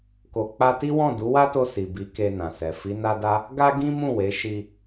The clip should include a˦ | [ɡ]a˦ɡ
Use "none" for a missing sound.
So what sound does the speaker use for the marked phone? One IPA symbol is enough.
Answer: ɡ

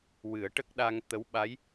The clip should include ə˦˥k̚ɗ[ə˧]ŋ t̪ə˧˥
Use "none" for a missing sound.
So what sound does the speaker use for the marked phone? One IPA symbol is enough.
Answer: a˧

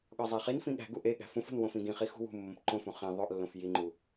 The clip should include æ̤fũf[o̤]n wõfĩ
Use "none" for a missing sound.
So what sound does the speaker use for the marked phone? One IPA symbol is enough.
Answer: o̤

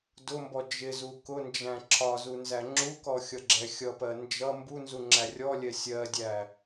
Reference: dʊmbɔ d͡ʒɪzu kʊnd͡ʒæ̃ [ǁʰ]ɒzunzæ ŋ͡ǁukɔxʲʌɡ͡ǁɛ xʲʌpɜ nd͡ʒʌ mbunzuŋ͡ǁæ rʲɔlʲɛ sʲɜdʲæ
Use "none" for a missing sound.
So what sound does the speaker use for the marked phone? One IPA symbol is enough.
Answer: ǁʰ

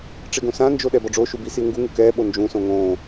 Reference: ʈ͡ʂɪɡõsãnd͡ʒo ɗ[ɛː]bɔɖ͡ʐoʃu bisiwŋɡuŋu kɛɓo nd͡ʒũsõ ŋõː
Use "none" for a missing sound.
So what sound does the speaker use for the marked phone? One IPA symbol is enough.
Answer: ɛ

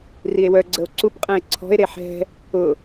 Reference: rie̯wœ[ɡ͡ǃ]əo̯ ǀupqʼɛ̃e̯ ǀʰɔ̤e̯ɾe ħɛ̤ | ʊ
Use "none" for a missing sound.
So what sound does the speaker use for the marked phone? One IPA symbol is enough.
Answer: ɡ͡ǀ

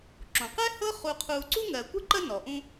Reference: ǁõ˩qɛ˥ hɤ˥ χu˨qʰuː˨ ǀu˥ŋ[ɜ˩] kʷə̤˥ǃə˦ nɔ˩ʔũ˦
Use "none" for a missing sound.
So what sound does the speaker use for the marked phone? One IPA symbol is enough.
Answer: ɜ˩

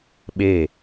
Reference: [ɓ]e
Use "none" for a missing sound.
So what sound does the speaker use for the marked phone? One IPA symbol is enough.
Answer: ɓ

